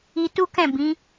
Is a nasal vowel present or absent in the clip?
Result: present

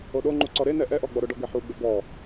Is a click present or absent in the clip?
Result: present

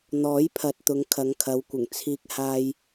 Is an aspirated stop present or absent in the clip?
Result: present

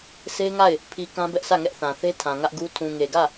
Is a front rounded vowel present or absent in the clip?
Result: absent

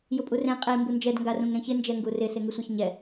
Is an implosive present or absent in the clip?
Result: absent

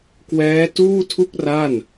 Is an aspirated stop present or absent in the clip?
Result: present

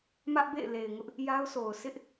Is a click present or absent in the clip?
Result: absent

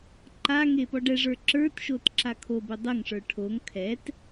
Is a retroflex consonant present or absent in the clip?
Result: present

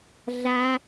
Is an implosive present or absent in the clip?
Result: absent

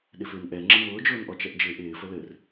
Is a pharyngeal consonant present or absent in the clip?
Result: absent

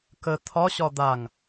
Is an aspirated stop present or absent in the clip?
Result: present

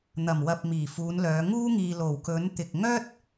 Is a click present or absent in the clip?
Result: absent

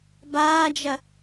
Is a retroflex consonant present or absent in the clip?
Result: absent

